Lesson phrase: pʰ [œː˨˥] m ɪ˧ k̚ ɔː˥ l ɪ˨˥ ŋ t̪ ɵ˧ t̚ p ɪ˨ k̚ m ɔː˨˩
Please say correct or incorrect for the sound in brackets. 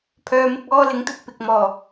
incorrect